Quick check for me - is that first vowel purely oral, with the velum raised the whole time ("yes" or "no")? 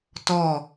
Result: yes